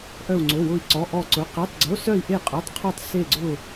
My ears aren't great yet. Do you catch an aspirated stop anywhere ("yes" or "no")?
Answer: yes